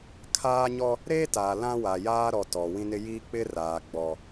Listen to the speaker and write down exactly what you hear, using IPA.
kʰ aː˦ ɲ ɔ˦ | ɾ eː˦ t aː˨ l ã˦ w a˨ j aː˦ ɾ ɔ˨ t ɔ˨ w ĩ˦ n ɪ˦ j iː˦ k͡p ɪ˦ r aː˨ ɡ͡b ɔ˨

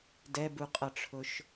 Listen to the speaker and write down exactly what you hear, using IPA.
d ɛ b u qʼ ʌ ʈ͡ʂʰ ʊ ʃ

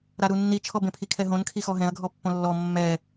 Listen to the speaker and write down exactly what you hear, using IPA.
ɾ a ɾ u nː i t͡ʃʰ ɔ b ẽ pʰ i kʰ ɛ ɦ õ n kʰ i x ɔ ɦ ɛ̃ ɐ̯ ɡʱ ɔ pː õ lː ɔ mː ɛ

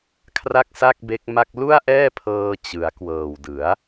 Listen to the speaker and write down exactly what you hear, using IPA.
kʰ r a˥˩ k̚ s a˥˩ k̚ b e˦˥ k̚ m a˥˩ k̚ l u˥˩ a̯ ʔ ɛː˥˩ pʰ ɤː˧ t͡ɕ ɯ˩˦ a̯ k w ɤː˨˩ w d ɯ˩˦ a̯

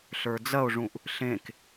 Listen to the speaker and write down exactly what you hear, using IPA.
ɬ ə˞ d͡z ɐ o̯ ʐ ũ ʔ | ɬ ẽ k

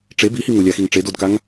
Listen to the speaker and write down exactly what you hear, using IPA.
ʈ͡ʂ e b i h i ŋ ʊ lʲ a x i ŋ ʈ͡ʂ e d o d k a ŋ

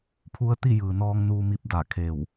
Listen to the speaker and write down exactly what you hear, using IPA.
pʰ u˧˥ ə̯ t̪ i˥˨ j ɯː˩ n ɔː˧ ŋ n uː˧ m i˧ p̚ d a˧˩ kʰ e˧˩ w

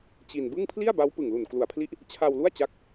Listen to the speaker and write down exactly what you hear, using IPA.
t͡ɕ i˧ n b ɯ˥˩ ŋ pʰ l i˥˩ a̯ b a˦˥ w p ɯ˨˩ ŋ l u˨˩ n k l u˨˩ a̯ pʰ l i˦˥ ʔ | t͡ɕʰ a˧ w l u˥˩ a̯ t͡ɕ a˦˥ k̚

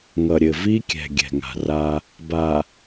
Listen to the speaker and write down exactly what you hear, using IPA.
ŋ ʌ˨ ɾʲ ɘ˨ v i˦ kʲ ɛ̤˨ ɡʲ ɛ̤˨ ŋ a̤˨ r a˦ | b a˨

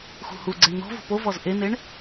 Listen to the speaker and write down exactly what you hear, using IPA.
x ṳ h u ɡ͡ǀ ɛ ɳ n̪ ɔ̤ v ṳ p o v ɔ z ʔ e n̪ e ɳ

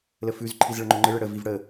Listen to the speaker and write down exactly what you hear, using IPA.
l ə f ʉ z ǃʰ i z ɭ ə ŋ͡ǃ ɵ ŋ͡ǃ ɘ ɭ ɘ ɽ ə v i v ɽ ə

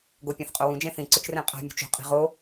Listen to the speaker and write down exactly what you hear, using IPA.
ɡ o pʲ ã θ qʼ o w ũ d͡ʒ ẽ θ ĩ ǀ ʊ t͡ʃ r ẽ qʼ a̤ mʲ ṳ t͡ʃ o̤ qʼ i̤ ʁ o

